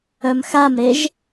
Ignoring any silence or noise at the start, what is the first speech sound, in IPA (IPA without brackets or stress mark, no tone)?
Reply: œ